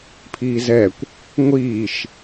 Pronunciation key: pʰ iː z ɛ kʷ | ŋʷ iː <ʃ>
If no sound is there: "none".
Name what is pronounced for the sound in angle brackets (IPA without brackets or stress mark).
ʃ